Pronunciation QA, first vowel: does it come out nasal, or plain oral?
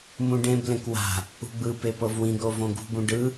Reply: nasal